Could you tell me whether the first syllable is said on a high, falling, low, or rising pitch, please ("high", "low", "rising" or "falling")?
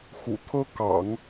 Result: low